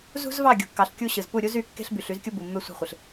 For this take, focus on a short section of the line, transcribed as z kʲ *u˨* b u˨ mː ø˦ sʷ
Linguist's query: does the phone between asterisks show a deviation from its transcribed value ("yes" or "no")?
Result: yes